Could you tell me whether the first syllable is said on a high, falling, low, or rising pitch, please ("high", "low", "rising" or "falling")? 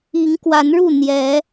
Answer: rising